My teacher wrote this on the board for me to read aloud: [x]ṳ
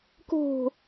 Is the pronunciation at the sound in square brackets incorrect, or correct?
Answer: incorrect